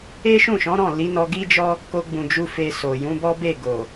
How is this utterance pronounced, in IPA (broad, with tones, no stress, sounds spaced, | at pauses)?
e˦ ʃ ũ˦˨ ʃ ɔ̃˨˦ ɾ ɔ̃˦˨ l i˨˦ n ɔ˧ ɡ i˦ d͡ʒ ɔ˦ | k o˧ ɡ͡b ũ˨ d͡ʒ u˧ f e˧ s o˨ j ũ˨˦ b ɔ˦ b e˦˨ ɡ o˨